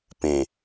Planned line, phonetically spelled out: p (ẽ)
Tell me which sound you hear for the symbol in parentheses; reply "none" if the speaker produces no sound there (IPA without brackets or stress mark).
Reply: ẽ